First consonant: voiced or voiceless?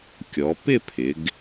voiceless